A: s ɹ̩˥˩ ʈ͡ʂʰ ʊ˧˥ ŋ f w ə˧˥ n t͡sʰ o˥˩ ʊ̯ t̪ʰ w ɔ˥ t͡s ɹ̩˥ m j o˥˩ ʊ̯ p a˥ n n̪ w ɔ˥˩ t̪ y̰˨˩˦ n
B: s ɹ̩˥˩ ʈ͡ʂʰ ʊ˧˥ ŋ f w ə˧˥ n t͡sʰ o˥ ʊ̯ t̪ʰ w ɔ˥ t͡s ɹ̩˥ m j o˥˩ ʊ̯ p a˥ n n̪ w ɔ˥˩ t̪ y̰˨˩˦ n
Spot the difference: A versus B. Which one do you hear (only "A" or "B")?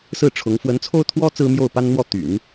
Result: B